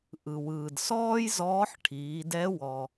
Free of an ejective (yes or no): yes